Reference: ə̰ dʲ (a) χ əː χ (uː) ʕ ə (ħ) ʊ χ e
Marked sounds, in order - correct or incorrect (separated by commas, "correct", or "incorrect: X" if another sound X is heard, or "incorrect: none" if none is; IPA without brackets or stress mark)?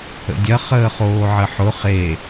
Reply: incorrect: ɐ, incorrect: oː, correct